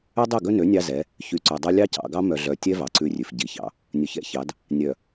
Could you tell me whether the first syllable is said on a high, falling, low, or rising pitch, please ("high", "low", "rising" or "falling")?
high